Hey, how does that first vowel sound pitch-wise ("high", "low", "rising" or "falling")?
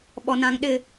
low